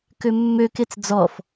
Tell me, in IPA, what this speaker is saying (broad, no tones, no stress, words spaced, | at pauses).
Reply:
kømːøket͡s d͡zɔf